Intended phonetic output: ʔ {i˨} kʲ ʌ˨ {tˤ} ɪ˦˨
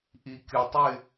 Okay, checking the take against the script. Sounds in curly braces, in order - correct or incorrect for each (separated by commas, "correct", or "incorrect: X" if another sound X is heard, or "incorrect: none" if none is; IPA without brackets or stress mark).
correct, correct